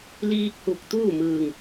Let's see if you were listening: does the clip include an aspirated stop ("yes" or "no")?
no